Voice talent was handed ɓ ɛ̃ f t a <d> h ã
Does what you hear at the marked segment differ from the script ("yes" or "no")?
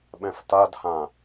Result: no